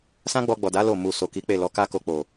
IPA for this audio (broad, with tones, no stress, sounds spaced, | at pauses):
s ã˦ ɡ͡b ɔ˧ ɡ͡b ɔ˨ d a˨˦ l o˦˨ m u˨ s o˨ k i˨˦ k͡p e˦˨ l ɔ˨˦ k a˦ k o˧ k͡p o˨